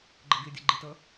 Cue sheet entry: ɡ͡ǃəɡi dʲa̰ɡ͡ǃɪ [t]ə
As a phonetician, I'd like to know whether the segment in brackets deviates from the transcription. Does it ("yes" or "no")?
no